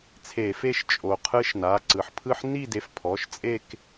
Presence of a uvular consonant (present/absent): present